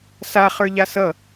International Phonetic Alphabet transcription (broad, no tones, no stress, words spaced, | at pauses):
sa χə˞ʎasʌ